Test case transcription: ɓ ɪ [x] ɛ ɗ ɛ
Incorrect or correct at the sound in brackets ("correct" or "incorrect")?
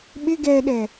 incorrect